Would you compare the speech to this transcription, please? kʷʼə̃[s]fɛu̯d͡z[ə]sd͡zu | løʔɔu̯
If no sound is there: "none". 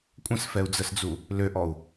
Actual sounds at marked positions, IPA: s, ə

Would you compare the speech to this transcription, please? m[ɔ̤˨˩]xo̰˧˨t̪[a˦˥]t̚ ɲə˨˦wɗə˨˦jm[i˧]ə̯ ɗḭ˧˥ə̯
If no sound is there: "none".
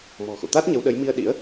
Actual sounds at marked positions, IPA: ɔ̤˨˩, a˦˥, i˧

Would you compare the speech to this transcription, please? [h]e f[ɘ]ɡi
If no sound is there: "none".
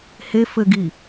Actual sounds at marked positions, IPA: h, ɘ

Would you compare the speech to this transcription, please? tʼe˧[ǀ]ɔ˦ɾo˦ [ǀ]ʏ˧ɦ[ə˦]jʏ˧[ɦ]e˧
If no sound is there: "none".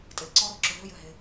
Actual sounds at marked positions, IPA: ǀ, ǁ, ʏ˦, ɦ

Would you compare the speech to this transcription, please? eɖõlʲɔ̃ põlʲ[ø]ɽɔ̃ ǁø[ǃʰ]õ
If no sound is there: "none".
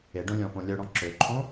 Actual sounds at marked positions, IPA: œ, ǃʰ

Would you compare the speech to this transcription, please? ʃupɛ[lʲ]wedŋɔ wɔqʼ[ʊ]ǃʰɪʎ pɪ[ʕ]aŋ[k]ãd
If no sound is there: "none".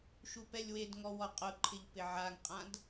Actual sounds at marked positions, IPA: lʲ, ʊ, ʕ, qʼ

